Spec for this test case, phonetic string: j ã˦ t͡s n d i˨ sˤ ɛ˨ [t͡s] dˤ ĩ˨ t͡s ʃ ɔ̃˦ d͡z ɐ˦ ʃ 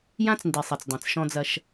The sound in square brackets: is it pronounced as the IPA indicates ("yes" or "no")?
yes